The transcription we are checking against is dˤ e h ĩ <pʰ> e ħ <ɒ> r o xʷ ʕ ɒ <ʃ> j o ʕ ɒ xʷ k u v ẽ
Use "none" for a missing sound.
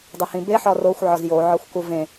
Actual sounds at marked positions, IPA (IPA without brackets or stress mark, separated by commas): b, ɒ, z